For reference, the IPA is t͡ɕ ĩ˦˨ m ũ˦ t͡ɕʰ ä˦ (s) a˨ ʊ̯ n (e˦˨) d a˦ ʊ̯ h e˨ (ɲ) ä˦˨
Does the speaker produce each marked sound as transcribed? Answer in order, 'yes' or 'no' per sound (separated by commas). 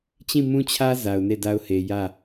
no, yes, no